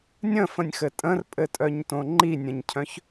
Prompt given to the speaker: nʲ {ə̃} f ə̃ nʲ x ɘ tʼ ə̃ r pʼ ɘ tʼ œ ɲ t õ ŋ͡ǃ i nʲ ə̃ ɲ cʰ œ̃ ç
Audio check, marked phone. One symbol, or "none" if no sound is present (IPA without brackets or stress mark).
ə̃